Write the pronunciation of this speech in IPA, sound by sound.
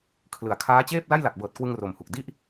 kʰ l ɯ˩˦ a̯ kʰ aː˦˥ t͡ɕ eː˥˩ p̚ l a˥˩ j l a˨˩ k̚ b ɤː˨˩ t̚ k w ɯ˧ ŋ r o˨˩ m h u˨˩ k̚ d i˥˩ ʔ

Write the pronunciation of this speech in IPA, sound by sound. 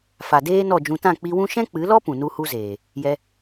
f a˨ d eː˦ n ɔ˦˨ d͡ʒ ũ˧ t ã˦˨ k͡p i˧ w ũ˦ ʃ ɛ̃˦ k͡p ɨ˨˦ l ɔ˦ p ũ˨ n u˦ h u˦ z eː˨ | j ɛ˧

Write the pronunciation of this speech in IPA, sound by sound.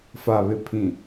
f a˨ β ɪ˨ pʰ ĩ˨

